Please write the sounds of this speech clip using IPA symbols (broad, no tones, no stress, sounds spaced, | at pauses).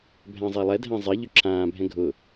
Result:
bʱ æ̃ zˤ ɛ lˠ ɛ dʱ æ̃ zˤ ɛ ʎ ʏ ǁʰ ãː bʱ ɛ̃ ɡʱ ʊ